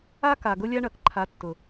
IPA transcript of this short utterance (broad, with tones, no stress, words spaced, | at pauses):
a˦ka˨ ɡʊ˦lʲa˦ɳɐ˨k ǃʰa˨˦tːʊ˨